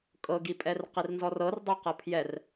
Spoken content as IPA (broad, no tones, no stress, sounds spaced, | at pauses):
kʼ ɤ ɡ i pʼ ɛ r q i r n z ɔ r ɤ r dˤ ɤ q ɤ pʰ j ɛ r